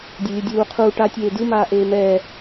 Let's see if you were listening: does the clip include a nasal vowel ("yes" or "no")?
no